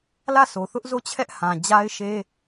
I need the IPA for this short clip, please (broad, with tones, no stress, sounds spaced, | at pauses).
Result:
l ä˦˨ s o˨ θ ʊ˦ ʔ z o˦˨ t͡ɕʰ ɛ˦ ʔ h ã˨ d͡ʑ a˦ ɪ̯ ʃ e˦